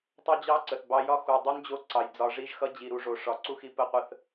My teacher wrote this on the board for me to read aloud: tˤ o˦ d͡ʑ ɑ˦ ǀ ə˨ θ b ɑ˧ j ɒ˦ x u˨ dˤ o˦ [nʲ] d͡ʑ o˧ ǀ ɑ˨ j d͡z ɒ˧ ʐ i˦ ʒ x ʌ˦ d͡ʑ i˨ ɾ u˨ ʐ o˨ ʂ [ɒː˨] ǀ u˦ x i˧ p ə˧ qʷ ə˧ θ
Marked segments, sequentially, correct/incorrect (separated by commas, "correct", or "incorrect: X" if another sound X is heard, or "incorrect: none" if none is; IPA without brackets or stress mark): incorrect: n, incorrect: ɒ˨